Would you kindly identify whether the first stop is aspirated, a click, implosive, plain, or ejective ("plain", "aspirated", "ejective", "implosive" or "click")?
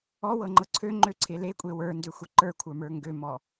click